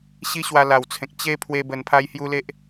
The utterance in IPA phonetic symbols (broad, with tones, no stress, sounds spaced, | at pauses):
ɕ i˦ ɕ w a˧ l a˨˩ w t͡sʰ ẽ˨ k̚ t͡ɕ e˦ pʰ w e˧ b ə˧ n pʰ a˦ j h j u˦ l e˦ ʔ